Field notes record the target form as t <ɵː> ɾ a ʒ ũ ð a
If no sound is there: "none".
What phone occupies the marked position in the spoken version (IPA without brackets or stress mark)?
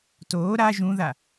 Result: oː